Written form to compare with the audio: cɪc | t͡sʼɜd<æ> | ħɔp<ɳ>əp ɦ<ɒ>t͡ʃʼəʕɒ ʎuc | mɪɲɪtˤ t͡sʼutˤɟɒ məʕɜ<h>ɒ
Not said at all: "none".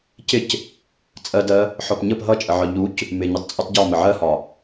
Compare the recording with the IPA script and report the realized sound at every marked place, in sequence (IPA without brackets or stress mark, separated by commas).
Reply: ɜ, ɲ, ʌ, h